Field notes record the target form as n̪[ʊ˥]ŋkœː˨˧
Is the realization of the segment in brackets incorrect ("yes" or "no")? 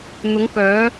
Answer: yes